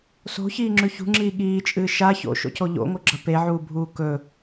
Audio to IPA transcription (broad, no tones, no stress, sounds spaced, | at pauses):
s o̤ ç iː ŋ͡ǁ ʉ ç ṳ ŋ͡ǁ iː ɠ iː t͡ʃʼ ɨː ʃ a ç o̰ ʃ o̰ c o ʎ o̰ ŋ o ɡ͡ǁ ɐ p e ʕ uː bʱ uː k ɵ